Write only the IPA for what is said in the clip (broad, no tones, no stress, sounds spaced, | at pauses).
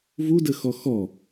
v u d ə x ɔ x ɔ